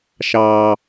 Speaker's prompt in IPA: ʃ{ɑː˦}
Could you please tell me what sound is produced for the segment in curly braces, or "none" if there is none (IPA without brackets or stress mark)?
ɑː˦